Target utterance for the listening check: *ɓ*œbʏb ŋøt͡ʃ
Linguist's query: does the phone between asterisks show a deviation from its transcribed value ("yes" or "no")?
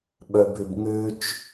no